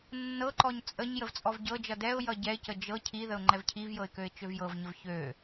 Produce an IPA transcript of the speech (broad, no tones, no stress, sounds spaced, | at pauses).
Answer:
nː ɤ ǃ ɔ ɲ t͡sʼ ə ɲ j ə v t͡sʼ ɔ v ɟ ɤ d͡ʒ ʌ d ɛ ʊ̯ j ʌ ɟ ɛ ɪ̯ c ə d͡ʒ ɤ cʰ i ð ə ʊ̯ ŋ͡ǃ ɛ v cʰ i v j ɤ ɪ̯ k ø ɪ̯ t͡ʃ ø v j ɤ v ɲ ə v ç ø